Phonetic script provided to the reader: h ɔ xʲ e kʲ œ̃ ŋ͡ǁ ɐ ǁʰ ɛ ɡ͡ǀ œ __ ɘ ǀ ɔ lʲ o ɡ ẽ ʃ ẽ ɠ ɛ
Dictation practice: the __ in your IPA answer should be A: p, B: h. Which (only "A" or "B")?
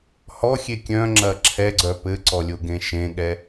A